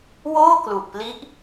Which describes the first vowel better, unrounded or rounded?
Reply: rounded